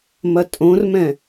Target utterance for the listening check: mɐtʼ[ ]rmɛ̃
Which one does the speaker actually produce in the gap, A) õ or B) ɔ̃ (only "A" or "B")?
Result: A